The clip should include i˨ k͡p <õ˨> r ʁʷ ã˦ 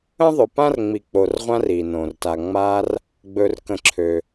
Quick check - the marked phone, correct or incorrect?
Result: incorrect